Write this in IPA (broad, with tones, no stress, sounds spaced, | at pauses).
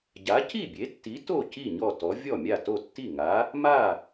ɟ a˨˥ c i˥˩ bʲ e˨˥ tː i˨˥ t o˥˩ c i˥˩ ɲ ɔ˥˩ t ɔ˨˥ vʲ ɔ˥˩ mʲ a˥˩ t o˥˩ tː i˥˩ ŋ a˨˥ | m a˥˩